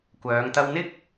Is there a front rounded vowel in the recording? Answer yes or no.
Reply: yes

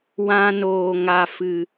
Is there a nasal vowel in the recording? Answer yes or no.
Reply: yes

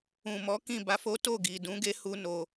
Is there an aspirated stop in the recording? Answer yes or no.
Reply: no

